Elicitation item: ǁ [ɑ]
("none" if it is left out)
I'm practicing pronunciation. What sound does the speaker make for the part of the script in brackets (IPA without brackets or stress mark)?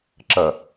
ɐ